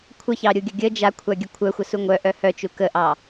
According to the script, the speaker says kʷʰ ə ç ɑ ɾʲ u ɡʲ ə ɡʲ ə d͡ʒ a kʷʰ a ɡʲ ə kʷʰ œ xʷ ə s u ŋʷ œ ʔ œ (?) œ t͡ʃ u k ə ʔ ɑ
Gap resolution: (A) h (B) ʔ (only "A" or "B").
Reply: A